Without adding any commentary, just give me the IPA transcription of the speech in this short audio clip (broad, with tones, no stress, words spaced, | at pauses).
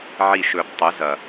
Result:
ʕi˧˩ʃɵ˨˩˦b tˤʊ˩˥zɐ˩